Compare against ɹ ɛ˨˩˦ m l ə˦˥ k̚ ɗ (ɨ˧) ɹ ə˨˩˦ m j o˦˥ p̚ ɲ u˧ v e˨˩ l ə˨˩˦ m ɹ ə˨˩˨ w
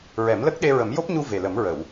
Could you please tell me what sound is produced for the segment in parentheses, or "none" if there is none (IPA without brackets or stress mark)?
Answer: e˧